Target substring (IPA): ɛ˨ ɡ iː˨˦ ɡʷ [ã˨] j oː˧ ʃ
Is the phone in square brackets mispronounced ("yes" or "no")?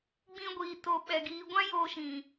yes